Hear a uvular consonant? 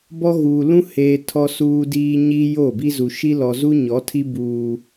no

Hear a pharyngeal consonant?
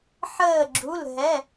yes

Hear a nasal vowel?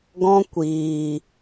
yes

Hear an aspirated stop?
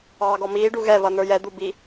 no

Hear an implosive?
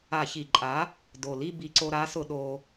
yes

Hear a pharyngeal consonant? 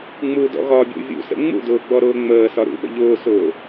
no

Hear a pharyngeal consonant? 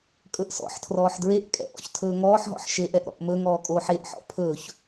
yes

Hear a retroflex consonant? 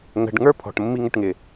yes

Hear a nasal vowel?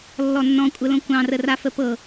yes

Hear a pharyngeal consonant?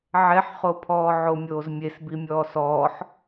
yes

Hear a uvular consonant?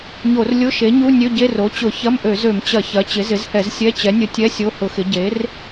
no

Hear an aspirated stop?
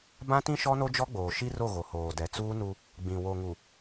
no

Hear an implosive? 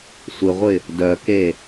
no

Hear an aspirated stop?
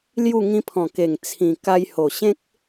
yes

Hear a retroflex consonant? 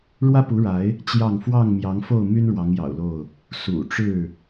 yes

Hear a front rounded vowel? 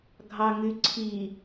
yes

